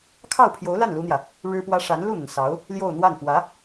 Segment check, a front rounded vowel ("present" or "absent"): absent